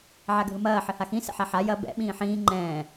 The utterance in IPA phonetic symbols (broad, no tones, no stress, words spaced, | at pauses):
ʕaɡʱɯmɐː ħɘhaxĩ sə̰ħaħa jɐ bɛ̰ ɓĩːħĩː ŋ͡ǃɛ̃ː